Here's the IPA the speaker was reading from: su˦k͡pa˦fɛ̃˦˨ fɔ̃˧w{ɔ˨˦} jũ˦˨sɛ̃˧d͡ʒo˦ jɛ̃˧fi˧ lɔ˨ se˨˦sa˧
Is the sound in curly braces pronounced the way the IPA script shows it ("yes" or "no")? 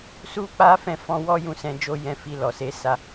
no